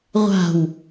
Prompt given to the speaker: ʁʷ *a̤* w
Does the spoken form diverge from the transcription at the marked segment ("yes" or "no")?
no